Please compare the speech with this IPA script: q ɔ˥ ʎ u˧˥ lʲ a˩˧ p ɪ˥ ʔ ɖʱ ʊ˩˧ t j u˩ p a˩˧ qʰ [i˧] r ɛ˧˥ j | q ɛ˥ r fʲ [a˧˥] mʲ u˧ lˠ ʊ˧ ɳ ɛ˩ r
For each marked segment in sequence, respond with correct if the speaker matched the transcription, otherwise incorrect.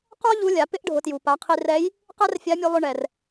correct, correct

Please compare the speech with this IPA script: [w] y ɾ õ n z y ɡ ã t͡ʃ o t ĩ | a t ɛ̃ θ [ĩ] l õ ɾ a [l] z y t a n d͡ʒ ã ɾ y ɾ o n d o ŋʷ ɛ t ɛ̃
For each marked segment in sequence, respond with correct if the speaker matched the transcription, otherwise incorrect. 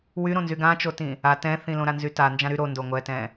correct, correct, incorrect

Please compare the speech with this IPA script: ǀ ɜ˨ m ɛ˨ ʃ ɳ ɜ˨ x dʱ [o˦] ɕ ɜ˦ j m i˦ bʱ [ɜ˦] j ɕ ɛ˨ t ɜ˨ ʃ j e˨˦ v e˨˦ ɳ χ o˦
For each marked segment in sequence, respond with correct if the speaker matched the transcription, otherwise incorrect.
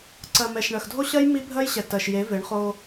correct, correct

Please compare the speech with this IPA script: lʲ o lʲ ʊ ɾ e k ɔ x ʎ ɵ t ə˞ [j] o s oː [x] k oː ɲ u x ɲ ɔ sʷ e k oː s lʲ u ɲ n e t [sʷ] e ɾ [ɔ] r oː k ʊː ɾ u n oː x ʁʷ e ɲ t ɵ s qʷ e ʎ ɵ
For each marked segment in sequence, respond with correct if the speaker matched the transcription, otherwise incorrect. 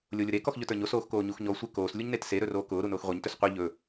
incorrect, correct, incorrect, incorrect

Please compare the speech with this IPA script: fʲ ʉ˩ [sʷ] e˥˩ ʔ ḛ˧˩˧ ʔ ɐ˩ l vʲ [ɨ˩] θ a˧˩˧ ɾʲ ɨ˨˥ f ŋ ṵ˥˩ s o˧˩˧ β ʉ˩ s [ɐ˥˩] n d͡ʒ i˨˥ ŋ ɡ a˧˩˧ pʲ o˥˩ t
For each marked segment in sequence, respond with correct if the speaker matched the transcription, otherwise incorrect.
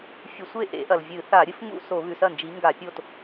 correct, incorrect, correct

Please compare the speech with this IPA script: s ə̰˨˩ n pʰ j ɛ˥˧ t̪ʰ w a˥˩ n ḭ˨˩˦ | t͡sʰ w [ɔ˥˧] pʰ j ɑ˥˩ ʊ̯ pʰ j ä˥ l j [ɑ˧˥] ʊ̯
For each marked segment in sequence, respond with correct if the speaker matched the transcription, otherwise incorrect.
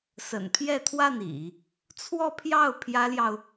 correct, incorrect

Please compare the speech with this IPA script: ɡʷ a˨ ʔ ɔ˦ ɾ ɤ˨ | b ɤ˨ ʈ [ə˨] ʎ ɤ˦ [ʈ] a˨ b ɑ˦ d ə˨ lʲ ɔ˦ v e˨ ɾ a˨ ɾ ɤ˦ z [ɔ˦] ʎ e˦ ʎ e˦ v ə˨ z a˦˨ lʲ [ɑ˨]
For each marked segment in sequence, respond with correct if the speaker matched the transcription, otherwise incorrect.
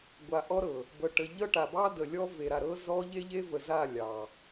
correct, correct, correct, correct

